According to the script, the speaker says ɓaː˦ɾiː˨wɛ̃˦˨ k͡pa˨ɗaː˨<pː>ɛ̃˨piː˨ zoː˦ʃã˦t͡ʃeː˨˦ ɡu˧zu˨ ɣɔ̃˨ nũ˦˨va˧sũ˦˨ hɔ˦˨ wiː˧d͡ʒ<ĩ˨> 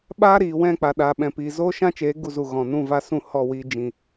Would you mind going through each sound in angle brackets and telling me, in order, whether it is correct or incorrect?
incorrect: ɓ, correct

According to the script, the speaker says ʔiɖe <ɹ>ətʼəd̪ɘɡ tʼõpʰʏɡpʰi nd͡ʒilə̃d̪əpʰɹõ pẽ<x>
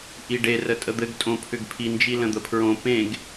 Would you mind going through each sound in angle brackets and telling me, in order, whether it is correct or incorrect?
incorrect: r, incorrect: ɡ

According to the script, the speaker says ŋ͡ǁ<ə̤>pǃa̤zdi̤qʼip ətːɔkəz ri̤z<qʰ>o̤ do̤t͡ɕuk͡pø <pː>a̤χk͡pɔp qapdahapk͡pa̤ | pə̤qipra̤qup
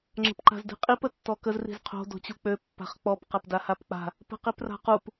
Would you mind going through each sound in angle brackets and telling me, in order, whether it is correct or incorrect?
correct, correct, correct

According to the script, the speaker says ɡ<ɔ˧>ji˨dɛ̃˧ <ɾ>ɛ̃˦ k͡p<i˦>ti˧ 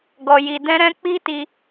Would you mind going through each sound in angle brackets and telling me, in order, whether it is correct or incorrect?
incorrect: ɔ˨, correct, correct

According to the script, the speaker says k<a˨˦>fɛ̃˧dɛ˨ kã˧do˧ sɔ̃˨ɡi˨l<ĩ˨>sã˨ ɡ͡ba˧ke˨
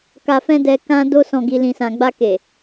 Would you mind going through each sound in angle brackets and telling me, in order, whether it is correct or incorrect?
incorrect: a˨, correct

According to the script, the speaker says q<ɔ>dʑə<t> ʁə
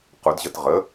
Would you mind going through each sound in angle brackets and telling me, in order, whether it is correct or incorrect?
incorrect: ʊ, correct

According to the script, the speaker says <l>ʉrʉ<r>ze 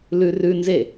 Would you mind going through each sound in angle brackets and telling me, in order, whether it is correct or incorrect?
correct, incorrect: n

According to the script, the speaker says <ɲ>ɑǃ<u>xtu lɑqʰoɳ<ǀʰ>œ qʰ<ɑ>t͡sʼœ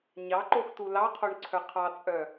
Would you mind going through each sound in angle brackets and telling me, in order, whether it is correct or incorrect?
correct, incorrect: o, correct, correct

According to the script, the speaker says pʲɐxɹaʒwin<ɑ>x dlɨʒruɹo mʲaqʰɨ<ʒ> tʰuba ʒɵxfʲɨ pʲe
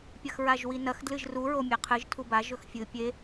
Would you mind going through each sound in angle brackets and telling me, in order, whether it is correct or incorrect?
incorrect: ɐ, correct

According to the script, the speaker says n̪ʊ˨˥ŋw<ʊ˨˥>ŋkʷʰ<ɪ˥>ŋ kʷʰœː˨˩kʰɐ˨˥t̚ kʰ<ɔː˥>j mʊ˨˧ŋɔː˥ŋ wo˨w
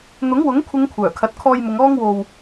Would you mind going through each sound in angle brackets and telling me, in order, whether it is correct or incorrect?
correct, incorrect: ɪ˨˧, incorrect: ɔː˧

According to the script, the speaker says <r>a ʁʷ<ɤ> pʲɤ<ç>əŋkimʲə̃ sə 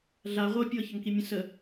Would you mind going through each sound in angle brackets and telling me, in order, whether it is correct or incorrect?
incorrect: ɮ, correct, correct

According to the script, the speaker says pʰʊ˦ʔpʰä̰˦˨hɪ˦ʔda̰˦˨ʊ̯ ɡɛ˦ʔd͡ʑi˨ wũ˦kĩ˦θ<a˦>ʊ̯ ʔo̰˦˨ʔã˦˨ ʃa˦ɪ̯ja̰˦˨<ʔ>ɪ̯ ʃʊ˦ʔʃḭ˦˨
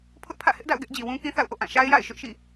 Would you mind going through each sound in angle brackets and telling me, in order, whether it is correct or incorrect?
incorrect: a̰˦˨, incorrect: none

